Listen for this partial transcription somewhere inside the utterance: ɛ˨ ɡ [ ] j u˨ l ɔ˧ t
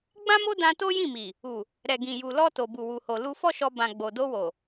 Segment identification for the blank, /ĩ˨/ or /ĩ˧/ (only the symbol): ĩ˨